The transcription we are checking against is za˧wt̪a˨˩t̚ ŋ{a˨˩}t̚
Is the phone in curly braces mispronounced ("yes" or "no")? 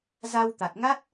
yes